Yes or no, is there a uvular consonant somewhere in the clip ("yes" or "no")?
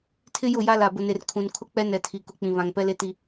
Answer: no